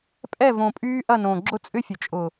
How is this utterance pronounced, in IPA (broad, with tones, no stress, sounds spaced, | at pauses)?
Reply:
pʼ ɛ˦˨ v õ˨ pʼ yː˦ ʔ ɐ˦˨ n õ˨ ɡ͡ǁ ʊ˦ t͡sʼ ʏ˦ fʲ ə˨ t͡ʃʼ ʊ˨